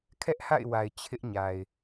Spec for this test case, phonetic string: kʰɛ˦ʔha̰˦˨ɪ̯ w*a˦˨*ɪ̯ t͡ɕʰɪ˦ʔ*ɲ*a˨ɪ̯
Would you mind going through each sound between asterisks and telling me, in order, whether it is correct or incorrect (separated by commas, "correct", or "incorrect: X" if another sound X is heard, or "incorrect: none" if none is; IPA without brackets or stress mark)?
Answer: incorrect: a˨, correct